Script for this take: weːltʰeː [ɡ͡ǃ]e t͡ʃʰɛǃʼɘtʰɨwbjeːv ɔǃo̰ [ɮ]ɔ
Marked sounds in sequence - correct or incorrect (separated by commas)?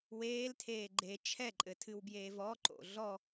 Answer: correct, correct